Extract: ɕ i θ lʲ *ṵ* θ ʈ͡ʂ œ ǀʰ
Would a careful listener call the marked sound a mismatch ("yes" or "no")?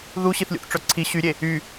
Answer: no